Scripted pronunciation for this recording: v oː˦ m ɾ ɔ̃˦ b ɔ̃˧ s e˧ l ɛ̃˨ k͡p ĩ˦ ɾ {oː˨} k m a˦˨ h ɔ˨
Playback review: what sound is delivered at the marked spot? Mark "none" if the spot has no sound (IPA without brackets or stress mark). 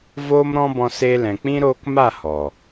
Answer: oː˧